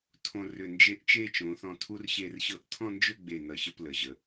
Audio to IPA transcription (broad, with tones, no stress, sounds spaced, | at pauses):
tʰ õ˧ r ʏ˧˩ n d͡ʒ e˥˧ ʔ t͡ʃ e˥˧ t͡ʃ õ˩˧ θ ɔ̃˧ tʰ u˥ r ɕ e˥˧ r ɕ ɤ˥ ʔ tʰ ɔ̃˥˧ n d͡ʒ ʏ˥˧ ɡ͡b e˧˩ n ʌ˧˩ ɕ ə˥˧ p l ə˩˧ ʑ ə˩˧